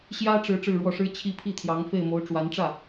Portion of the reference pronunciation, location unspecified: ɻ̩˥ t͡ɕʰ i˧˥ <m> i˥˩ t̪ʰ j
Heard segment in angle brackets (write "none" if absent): pʰ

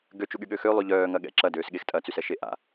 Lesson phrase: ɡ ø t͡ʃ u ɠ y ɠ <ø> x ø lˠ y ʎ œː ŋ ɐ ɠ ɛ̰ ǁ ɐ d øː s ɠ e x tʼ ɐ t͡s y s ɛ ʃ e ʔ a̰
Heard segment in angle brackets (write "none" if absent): ø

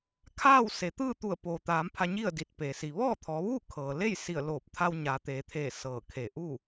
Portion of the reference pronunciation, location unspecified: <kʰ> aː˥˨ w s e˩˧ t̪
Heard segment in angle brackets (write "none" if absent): kʰ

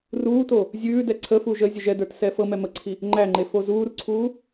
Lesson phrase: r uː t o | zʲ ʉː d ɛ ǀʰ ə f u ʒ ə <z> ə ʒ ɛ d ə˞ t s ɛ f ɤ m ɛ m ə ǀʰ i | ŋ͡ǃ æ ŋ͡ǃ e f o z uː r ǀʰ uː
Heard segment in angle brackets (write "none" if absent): zʲ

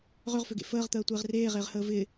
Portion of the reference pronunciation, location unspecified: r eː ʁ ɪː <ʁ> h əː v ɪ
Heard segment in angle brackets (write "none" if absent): ʁ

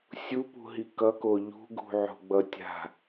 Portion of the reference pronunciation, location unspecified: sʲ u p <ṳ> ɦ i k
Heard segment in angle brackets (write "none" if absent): ṳ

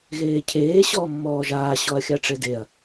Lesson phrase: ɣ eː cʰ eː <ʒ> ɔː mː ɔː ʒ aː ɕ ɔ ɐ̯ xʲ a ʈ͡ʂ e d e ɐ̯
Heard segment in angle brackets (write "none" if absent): ɕ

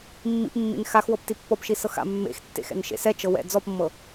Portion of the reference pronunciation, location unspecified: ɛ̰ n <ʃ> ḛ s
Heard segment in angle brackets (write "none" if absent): ʃ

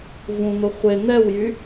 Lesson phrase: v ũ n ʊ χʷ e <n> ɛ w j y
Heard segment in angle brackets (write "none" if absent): n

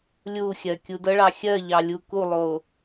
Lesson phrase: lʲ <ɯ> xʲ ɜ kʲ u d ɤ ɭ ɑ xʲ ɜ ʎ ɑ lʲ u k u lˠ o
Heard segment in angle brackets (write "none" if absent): u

